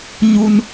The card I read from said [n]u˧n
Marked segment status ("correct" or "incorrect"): incorrect